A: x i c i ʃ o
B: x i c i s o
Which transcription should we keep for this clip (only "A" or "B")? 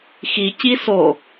B